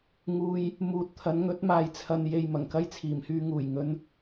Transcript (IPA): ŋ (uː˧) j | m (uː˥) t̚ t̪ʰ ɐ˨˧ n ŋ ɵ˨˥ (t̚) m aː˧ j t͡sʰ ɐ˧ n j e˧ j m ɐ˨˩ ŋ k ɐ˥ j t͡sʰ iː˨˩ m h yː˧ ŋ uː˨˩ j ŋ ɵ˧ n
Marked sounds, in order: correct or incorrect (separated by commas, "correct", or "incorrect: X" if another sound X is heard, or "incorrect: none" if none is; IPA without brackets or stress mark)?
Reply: correct, incorrect: uː˨˥, correct